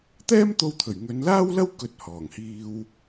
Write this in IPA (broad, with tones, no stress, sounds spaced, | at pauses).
t̪ ɛː˥ m t̪ o˧ w t̪ʰ ɵ˨˩ ɥ ŋ ɵ˨˧ n l aː˥ w l ɐ˥ w k ɵ˧ t̚ h ɔː˨˩ ŋ h iː˧ w